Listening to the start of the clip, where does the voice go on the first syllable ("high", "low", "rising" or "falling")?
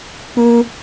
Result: high